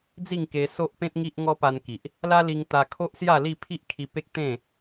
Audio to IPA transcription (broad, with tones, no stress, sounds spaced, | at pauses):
d͡z i˥˧ ŋ k e˧ s o˦ ʔ p ẽ˦ t̚ ŋ i˦ ʔ ŋ ɔ˦ p a˧ n k i˨ ʔ | l a˦ l i˧ ŋ t̪ a˧ kʰ o˦ ʔ s j a˥˧ l i˥˧ pʰ i˦ ʔ kʰ i˧ p e˦ k̚ t̪ ẽ˥˧